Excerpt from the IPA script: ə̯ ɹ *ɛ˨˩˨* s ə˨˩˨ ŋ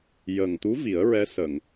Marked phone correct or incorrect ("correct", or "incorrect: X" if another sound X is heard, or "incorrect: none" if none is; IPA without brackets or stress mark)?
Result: incorrect: ɛ˧˥